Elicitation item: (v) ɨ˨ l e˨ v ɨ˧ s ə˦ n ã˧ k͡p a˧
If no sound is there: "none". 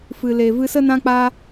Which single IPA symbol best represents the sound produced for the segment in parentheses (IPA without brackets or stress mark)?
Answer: f